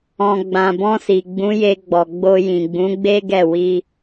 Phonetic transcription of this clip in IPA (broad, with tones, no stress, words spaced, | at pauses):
ɔ̃˨ɡ͡bã˨bɔ̃˧si˨ ɡ͡bũ˨˦je˧ɡ͡bɔ˨ ɡ͡bo˧ jĩ˨ɡ͡bũ˨˦ɡ͡be˦ɡɛ˦˨ wi˧